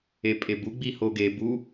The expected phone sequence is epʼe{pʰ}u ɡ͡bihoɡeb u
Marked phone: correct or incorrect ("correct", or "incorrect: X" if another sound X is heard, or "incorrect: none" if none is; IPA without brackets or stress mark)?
incorrect: b